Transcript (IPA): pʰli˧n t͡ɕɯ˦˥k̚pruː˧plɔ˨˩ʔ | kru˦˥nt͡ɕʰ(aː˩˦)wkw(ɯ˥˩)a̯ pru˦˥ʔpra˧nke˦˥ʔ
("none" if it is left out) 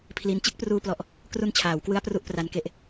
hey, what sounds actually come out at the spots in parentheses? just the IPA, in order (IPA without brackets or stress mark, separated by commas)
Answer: aː˩˦, ɯ˦˥